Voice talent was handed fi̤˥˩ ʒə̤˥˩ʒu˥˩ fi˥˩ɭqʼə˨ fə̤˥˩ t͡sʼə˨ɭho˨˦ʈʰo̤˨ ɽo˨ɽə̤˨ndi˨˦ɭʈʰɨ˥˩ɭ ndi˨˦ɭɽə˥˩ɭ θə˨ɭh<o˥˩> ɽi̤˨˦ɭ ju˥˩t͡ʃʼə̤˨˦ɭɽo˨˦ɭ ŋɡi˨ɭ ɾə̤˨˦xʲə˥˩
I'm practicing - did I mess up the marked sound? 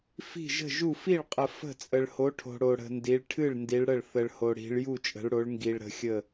yes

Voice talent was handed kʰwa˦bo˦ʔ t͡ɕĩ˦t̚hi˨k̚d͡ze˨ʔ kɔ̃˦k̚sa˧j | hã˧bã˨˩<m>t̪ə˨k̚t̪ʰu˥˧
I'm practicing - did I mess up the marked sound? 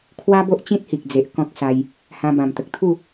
no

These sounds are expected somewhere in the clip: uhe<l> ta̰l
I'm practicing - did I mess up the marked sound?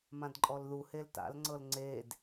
no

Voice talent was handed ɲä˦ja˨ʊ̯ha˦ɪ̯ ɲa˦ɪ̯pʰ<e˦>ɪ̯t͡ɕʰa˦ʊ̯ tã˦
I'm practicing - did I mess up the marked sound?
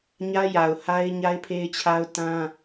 no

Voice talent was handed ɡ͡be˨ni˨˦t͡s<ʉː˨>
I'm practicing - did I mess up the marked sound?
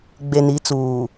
yes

